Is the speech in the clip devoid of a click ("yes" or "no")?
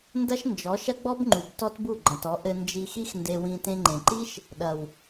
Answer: no